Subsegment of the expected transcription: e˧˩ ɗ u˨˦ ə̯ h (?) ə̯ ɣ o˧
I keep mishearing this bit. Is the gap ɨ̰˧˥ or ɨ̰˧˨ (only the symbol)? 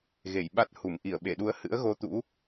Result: ɨ̰˧˥